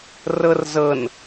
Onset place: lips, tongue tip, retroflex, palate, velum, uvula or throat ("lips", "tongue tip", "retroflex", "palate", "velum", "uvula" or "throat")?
tongue tip